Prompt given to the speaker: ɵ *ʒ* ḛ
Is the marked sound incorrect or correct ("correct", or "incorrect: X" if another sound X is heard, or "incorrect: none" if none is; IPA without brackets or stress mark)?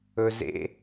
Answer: incorrect: z